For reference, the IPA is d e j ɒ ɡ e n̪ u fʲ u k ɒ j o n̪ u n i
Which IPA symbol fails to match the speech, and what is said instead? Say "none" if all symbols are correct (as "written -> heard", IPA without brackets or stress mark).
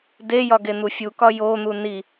none